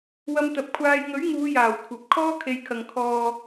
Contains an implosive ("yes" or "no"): no